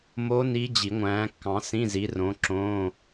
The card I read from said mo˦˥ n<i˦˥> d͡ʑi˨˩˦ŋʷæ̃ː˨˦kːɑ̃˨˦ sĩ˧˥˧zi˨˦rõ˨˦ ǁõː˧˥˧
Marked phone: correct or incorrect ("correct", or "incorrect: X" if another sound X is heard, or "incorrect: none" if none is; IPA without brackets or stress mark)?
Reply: correct